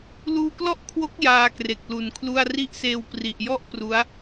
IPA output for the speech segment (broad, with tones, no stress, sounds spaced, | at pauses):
l uː˧ k l ɔ˥˩ ʔ kʰ w o˦˥ k̚ j aː˧ k r e˨˩ k̚ l u˩˦ n kʰ l u˥˩ a̯ r i˦˥ ʔ s eː˧ w p r i˨˩ ʔ j ɔ˥˩ ʔ p r u˦˥ a̯